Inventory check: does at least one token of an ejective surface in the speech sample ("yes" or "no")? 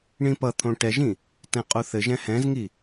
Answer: yes